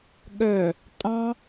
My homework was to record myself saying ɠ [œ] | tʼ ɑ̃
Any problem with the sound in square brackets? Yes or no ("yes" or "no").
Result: no